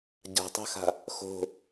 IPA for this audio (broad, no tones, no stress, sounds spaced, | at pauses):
ɟ a̤ tˤ a̤ x a̤ | x o̤